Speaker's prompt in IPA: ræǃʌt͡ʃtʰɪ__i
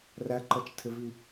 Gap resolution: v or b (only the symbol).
v